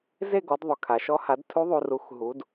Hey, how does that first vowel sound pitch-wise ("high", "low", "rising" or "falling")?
falling